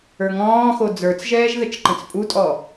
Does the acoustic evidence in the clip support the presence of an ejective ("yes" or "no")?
yes